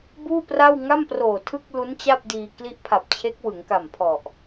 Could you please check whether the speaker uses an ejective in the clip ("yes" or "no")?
no